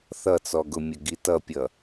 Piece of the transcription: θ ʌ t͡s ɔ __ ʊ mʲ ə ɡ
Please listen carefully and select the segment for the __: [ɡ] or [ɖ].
ɡ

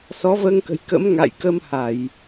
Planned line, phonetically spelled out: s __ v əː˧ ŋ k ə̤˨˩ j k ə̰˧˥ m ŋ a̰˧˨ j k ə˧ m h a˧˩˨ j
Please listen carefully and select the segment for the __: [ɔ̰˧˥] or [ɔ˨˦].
ɔ˨˦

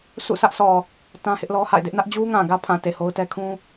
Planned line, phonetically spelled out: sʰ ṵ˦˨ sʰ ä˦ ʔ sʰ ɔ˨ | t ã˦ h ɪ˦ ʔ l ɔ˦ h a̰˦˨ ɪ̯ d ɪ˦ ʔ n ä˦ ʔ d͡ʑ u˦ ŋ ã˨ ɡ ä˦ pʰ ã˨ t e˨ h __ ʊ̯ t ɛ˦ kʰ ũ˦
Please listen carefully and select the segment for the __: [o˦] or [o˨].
o˦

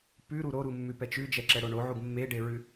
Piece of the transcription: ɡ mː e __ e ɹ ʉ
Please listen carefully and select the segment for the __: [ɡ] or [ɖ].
ɖ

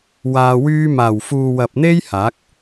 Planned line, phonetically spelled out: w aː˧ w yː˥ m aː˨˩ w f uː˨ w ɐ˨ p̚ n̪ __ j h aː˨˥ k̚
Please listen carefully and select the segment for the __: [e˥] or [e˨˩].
e˥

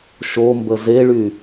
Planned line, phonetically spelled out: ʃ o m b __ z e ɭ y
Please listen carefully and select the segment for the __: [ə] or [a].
ə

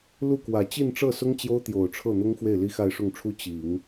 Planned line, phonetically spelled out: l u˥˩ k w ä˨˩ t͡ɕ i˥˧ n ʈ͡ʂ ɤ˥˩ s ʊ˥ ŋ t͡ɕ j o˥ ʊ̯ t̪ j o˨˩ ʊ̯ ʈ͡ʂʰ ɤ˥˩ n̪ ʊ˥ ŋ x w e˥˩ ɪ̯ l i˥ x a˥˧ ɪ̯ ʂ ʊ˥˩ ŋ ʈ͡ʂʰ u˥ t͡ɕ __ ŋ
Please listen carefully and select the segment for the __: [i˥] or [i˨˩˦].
i˨˩˦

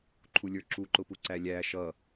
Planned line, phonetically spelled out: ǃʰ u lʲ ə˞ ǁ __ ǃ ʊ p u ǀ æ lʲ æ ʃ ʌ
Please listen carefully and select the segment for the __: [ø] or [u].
u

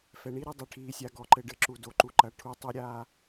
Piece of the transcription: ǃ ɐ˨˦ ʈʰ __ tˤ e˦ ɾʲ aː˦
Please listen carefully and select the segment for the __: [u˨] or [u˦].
u˨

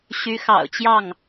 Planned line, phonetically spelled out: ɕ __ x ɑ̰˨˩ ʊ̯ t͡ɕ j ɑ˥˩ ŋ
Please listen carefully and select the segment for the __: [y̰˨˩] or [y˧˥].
y˧˥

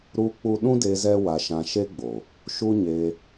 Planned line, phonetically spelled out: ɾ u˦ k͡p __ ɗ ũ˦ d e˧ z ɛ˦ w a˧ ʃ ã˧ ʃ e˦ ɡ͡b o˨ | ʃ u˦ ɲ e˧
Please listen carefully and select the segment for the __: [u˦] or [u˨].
u˦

